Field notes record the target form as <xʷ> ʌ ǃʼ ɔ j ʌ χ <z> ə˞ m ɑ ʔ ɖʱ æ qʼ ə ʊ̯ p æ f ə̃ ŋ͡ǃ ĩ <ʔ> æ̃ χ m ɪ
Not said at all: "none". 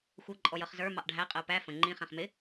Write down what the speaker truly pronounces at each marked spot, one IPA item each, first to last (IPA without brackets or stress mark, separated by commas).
xʷ, z, χ